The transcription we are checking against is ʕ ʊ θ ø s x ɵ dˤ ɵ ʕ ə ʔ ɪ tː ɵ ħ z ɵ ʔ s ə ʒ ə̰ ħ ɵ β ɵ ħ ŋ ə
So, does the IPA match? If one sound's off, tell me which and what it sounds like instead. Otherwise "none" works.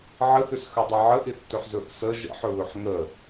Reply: ʊ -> ə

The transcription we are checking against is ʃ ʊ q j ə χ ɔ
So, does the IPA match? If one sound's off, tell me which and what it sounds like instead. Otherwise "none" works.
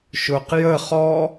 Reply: none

